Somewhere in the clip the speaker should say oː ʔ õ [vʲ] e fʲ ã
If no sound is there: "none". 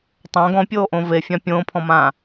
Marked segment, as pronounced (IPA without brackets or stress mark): v